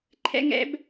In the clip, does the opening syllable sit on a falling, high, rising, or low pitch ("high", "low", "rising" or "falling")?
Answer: high